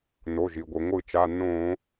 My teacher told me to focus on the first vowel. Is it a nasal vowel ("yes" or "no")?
no